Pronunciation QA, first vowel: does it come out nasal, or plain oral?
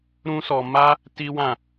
nasal